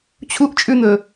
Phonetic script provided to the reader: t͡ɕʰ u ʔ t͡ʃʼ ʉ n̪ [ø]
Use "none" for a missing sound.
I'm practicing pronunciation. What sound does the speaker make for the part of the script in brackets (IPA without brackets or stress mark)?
ɵ